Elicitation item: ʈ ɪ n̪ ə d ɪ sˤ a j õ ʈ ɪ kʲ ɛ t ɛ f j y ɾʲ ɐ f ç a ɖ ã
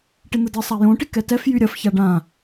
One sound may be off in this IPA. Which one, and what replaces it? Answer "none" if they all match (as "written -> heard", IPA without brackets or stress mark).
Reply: kʲ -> k